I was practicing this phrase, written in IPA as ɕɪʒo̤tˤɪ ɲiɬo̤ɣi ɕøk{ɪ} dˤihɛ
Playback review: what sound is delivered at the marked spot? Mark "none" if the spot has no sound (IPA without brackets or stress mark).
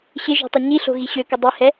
ɪ